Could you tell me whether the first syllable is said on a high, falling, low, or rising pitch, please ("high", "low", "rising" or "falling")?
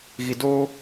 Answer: low